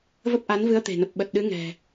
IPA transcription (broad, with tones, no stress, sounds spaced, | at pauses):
v ə˦˥ p̚ ʔ a˨˦ n v ɨ˨˦ ə̯ t̪ e̤˨˩ n ə˨˩ p̚ ɓ ə˨˩ t̚ ɗ ɨ˨˦ ŋ ɛ̤˨˩